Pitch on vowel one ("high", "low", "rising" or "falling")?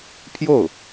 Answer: falling